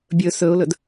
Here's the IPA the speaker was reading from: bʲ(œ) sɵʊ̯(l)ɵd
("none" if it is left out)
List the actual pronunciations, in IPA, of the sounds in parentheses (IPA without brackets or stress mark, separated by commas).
ɵ, l